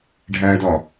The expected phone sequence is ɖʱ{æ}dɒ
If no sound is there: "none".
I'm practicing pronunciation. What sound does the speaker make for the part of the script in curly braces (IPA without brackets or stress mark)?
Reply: æ